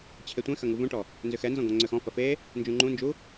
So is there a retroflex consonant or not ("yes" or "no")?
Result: yes